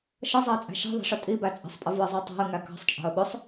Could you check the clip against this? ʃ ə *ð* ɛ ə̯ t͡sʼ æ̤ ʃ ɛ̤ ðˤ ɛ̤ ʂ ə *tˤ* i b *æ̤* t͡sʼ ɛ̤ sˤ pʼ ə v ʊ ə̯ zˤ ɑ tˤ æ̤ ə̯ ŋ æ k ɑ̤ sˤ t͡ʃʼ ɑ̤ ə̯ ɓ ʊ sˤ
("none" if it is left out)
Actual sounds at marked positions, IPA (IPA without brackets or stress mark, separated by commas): zˤ, tʼ, æ